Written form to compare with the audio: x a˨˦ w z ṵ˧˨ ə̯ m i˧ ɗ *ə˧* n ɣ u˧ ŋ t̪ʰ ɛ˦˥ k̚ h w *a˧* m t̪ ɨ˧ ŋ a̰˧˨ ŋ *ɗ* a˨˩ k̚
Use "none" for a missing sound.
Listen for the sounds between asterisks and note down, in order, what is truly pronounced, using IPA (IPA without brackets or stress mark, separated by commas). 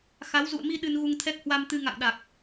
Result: ɨ˧, a˧, ɗ